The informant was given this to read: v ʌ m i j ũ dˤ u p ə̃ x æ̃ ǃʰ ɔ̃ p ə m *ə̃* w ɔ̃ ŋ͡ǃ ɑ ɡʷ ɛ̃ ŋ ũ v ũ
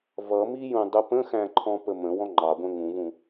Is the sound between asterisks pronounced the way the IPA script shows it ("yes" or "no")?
yes